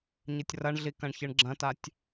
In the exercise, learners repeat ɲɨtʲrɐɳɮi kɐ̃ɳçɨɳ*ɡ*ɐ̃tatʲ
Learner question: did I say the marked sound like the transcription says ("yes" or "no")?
no